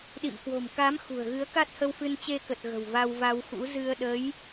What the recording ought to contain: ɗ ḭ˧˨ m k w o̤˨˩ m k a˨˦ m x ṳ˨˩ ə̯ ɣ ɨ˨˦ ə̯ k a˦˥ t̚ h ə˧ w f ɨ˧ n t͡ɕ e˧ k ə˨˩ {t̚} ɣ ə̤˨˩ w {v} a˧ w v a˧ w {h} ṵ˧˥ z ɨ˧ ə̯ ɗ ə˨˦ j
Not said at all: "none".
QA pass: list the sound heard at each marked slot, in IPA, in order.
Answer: t̚, v, x

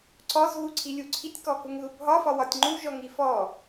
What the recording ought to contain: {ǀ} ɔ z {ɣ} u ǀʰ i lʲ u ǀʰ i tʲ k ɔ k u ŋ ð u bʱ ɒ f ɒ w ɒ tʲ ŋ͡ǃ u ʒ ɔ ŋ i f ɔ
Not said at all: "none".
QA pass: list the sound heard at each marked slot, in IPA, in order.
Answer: ǀ, ɣ

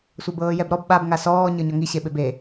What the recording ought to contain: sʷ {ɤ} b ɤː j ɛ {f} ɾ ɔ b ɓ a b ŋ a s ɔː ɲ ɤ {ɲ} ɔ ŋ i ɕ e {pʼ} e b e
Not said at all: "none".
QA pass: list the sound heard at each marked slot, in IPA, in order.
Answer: ɤ, b, ɲ, ɓ

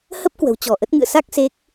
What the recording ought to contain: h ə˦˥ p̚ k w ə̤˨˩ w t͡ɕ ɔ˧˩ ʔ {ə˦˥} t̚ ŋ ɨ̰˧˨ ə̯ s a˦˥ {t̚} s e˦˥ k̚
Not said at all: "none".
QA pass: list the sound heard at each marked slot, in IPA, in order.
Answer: ə˦˥, k̚

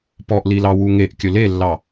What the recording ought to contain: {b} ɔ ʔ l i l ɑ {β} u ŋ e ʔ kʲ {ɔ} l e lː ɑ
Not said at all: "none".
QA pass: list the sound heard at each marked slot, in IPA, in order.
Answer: p, w, ɵ

